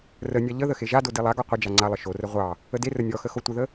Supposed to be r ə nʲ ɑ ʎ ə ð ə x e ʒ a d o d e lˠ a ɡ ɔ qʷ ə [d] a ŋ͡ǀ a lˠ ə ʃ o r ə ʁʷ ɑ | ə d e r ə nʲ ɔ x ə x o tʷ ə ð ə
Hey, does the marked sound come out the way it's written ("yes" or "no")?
no